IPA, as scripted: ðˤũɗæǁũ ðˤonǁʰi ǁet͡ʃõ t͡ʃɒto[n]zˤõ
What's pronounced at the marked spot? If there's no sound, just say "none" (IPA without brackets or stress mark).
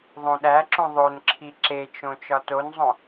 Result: n